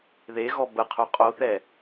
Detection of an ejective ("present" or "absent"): present